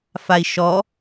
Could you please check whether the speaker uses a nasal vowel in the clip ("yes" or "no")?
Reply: no